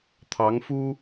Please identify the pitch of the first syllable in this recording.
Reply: rising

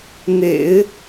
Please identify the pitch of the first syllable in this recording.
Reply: low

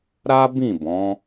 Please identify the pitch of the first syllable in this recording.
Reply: high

